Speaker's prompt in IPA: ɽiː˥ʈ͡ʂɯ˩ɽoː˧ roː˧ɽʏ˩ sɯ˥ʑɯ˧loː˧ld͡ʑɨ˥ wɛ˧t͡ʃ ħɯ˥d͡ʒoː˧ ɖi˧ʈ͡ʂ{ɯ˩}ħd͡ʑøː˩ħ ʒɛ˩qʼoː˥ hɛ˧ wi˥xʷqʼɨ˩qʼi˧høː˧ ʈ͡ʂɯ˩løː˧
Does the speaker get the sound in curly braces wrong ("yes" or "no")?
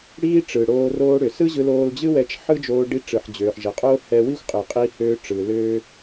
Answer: no